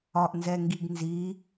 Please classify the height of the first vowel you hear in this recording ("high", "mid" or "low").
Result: low